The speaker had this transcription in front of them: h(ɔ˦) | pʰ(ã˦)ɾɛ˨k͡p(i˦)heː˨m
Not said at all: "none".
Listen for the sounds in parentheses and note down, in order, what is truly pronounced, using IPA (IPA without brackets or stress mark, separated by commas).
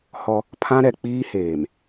ɔ˦, ã˦, iː˦